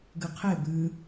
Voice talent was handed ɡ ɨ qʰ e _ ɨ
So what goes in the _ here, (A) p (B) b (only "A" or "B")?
B